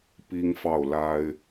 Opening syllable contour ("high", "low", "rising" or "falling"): high